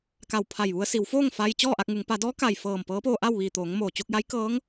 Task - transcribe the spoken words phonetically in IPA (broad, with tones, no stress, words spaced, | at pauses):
ka˧˩wpʰa˧˩jʋu˧ə̯ si˩˧wfoː˥˨ŋ fa˧j t͡ɕɔː˥˨ʔa˧k̚ŋu˩˧ŋ pa˩˧dɔː˧˥ka˩j fɤː˧˩mpɤː˧˥poː˧ʔa˥˨w ʋiː˧˩t̪oː˩˧ŋmoː˩ t͡ɕo˧k̚ja˧˥jkɤː˧˥ŋ